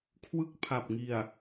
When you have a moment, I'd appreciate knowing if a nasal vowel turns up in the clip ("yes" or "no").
no